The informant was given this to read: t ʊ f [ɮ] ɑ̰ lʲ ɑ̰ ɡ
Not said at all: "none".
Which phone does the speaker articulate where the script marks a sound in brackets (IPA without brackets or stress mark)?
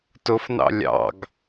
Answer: n